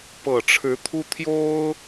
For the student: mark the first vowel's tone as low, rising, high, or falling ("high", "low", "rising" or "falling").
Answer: low